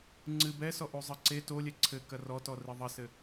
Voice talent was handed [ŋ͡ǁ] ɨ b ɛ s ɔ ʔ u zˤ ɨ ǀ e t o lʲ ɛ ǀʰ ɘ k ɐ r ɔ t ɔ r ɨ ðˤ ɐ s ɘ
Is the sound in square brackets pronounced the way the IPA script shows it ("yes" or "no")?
no